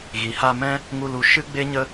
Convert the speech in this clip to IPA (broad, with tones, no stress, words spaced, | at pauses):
ɣi˨ha˧mɛ̃˦ | ŋu˧lu˧ ʃɨ˦ɡ͡be˦ɲə˦